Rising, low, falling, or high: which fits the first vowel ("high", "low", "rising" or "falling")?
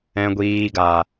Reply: low